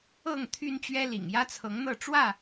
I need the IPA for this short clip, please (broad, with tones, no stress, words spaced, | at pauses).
ɤ˥˨ŋ t̪ʰy˦nt͡ɕɥɛ˦lḭ˨˩ŋ jä˦t͡sʰɤ˨˦ŋn̪ɤ˥˨ ʈ͡ʂwä˥˨